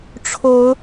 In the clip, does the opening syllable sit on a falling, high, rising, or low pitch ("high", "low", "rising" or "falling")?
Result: rising